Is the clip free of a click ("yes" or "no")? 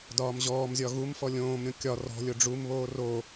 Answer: yes